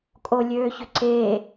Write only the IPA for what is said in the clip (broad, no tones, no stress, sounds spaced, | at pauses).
kʼ o lʲ øː ç ʏ ǀ eː